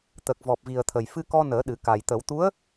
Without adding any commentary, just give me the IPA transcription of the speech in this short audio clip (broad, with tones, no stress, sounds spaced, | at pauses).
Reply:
t̪ əː˨˩ k̚ v ɔ˨˩ p̚ v i˨˩ ə̯ t̪ʰ ə˨˩ j f ɨ˧ k ɔ˧ n əː˨˩˦ ɗ ɨ˨˩˦ k a˨˩ j t̪ ə˨˩˦ w t̪ u˧˥ ə̯